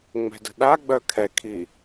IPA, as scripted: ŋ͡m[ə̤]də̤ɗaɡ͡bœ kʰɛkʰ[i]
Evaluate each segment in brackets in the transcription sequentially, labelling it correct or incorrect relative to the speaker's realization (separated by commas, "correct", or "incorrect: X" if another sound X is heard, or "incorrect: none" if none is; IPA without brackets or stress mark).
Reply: incorrect: ɛ̤, correct